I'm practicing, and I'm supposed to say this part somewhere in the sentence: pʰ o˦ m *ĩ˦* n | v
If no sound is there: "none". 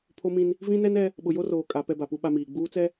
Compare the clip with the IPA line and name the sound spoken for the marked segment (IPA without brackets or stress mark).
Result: ĩ˦